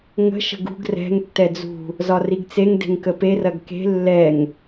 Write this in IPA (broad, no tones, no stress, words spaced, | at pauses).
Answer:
ŋə̤ ʃə̤ɡṳɡ rɛ̤ŋ tːɛd͡zṳ | zɒriɡt͡seŋ de̤ŋkəpe rɐɡke̤ lːɛŋ